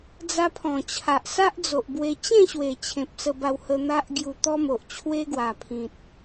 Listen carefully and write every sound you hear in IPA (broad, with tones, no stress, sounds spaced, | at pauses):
d͡z a˦ pʰ ɔ̃˨˩ t͡ɕʰ a˨ ʔ s a˦ ʔ d͡z o˨ ʔ b w e˧ t͡ɕ ẽ˥˧ ɕ w e˨˩ t͡ɕʰ ẽ˨ p̚ s ə˧ b a˧ w h ə˧ n̪ a˦ ʔ ɡ j u˧ t̪ ɔ˦ m o˨ ʔ t͡ɕʰ w e˦ ɡ w a˨˩ pʰ ĩ˨ t̚